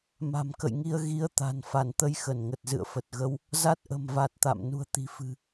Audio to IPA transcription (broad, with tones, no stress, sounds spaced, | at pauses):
m a̤˨˩ m k ə̰˧˨ j ŋ i˧ ə̯ ɣ i˨˦ ə̯ t̪ a̤˨˩ n f a˧˩ n t̪ ə˧ j x ə˧˩ n ŋ ə˨˩ t̚ z ɨ̰˧˨ ə̯ f ə˨˩ t̚ ɣ ə˧ w | z a˦˥ t̚ ʔ ə̤˨˩ m v a˨˩ t̚ t̪ a̰˧˨ m n ṳ˨˩ ə̯ t̪ i̤˨˩ f ɨ̤˨˩